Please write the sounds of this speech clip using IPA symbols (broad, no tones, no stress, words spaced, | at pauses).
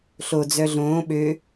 ɬod͡zœ ɮõː ɓø